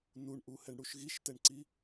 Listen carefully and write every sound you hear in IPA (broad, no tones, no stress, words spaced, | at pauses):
nuɳʔuhɛɳ ɽuʃɣiʃtɛɳǀi